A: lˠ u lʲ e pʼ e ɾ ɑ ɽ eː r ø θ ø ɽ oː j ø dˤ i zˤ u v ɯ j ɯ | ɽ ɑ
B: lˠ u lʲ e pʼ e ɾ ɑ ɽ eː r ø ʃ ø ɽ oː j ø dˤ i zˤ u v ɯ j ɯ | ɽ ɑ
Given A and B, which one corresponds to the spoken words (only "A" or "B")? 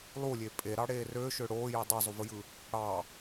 B